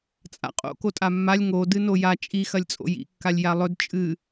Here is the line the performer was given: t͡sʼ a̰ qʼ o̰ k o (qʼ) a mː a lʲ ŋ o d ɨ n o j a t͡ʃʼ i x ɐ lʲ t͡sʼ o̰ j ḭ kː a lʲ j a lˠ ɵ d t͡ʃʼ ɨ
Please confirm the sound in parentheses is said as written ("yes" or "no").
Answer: no